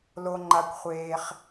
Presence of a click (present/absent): present